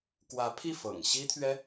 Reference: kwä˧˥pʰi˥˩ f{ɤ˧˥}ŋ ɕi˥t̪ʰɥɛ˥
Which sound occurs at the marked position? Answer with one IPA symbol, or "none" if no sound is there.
ɤ̰˨˩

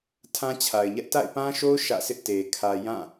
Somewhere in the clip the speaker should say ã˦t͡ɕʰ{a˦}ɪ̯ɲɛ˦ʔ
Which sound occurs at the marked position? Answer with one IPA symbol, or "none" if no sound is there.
a˨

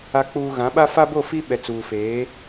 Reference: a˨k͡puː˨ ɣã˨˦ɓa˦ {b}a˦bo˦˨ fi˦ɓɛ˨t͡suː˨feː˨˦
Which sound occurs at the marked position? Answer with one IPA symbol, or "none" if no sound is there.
f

